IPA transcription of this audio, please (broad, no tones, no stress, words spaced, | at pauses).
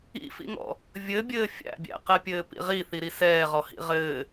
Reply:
ḭfḭŋɔ̰ | vʲɘbʲɘː fʲæ̰bʲæ̰qɛpʲɘː pḭʁiθiɾi sɛːʁɔhḭ ʁɘː